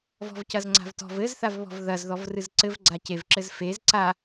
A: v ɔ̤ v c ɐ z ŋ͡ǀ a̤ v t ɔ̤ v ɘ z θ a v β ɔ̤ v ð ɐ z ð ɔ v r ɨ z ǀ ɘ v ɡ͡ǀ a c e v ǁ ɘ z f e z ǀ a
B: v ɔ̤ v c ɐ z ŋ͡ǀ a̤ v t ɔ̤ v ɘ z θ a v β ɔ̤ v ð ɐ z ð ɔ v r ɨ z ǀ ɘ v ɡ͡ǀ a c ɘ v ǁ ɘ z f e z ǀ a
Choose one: A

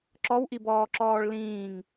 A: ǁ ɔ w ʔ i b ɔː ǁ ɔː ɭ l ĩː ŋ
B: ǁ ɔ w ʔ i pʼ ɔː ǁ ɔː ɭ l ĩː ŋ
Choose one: A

